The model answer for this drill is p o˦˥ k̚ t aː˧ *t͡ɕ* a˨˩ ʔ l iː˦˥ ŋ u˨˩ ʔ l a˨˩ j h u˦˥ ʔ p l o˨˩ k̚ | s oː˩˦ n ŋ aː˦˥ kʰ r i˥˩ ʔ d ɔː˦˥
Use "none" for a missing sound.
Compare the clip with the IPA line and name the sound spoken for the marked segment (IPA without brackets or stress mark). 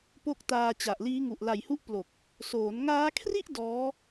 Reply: t͡ɕ